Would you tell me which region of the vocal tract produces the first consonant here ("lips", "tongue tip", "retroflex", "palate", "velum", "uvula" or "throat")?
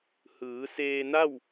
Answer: throat